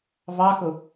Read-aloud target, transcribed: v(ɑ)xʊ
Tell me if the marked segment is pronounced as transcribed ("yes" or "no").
yes